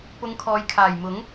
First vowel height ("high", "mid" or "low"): high